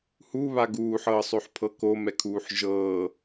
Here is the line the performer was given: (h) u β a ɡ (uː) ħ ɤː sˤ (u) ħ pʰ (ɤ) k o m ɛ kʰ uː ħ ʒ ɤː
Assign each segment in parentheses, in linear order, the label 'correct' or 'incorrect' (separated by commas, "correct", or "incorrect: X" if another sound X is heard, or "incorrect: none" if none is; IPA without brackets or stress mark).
correct, correct, incorrect: ø, correct